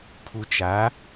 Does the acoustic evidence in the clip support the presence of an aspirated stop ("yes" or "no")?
yes